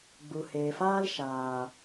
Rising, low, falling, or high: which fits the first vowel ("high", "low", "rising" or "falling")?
low